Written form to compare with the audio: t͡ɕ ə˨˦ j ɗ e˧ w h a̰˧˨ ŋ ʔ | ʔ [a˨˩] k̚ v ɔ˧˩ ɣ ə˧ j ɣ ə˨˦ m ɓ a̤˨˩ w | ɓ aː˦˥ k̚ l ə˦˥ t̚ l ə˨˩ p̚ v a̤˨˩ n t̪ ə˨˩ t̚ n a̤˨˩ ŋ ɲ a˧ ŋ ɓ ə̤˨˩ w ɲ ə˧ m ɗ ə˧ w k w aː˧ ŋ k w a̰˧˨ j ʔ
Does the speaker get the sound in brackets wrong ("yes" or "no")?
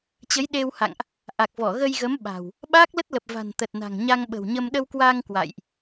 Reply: no